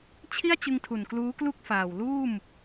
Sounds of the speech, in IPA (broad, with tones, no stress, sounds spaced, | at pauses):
t͡ɕʰ i˥˩ a̯ t͡ɕ ɯ˧ ŋ tʰ u˨˩ n k l uː˦˥ k l u˥˩ k̚ f aː˨˩ w l uː˥˩ m